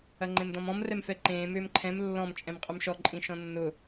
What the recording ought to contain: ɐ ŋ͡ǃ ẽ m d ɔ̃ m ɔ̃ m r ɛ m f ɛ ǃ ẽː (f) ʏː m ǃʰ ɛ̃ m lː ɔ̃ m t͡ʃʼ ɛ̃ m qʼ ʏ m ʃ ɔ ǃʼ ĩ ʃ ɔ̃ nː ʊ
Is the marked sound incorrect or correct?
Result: incorrect